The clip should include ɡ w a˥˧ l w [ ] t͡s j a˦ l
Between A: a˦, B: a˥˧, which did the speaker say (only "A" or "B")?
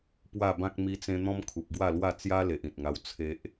B